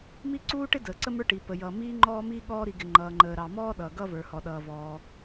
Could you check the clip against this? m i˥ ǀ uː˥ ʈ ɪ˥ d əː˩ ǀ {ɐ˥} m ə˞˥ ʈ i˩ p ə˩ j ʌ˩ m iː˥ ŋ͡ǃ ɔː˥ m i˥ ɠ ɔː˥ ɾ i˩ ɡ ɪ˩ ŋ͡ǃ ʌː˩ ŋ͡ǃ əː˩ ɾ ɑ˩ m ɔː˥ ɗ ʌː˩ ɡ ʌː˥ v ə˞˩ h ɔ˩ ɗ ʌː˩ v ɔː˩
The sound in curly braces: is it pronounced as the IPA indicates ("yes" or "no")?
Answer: no